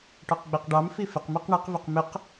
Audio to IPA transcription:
ʈɔqɡ͡biqɖɑmfi fɪqmiq ɳɪqvɪq mɪq

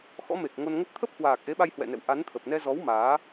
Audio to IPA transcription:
xɔ̰˧˥me˨˩k̚ ŋo˧nŋə˦˥t̚ t̪ʰə˦˥p̚hwaː˨˩k̚ ʔe˨˦ɓa˧jhwɛ̰˧˨nɛ̰˧˨w ʔa˨˦n t̪ʰə˨˩p̚nɛ˧ zɔ˨˦w maː˨˦

